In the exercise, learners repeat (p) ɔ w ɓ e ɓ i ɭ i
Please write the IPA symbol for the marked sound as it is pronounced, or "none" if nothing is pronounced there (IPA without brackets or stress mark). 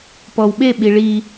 p